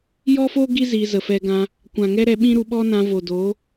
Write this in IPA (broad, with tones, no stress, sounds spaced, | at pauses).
j ɔ˦ f o˦ ɡ i˦ z i˧ z ə˨ f ɛ˧ ɡ ã˧ | kʷ ã˨ ŋ ɛ˦ ɾ ɛ˧ ɓ ĩ˦ ɾ u˧ ɓ ɔ˦ n ã˧ v o˨ d o˨˦